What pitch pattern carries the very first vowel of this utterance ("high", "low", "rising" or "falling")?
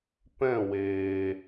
falling